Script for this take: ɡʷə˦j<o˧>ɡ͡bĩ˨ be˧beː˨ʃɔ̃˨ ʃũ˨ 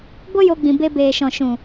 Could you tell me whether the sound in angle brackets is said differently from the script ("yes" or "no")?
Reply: no